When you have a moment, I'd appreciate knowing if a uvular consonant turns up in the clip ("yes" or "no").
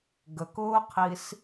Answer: yes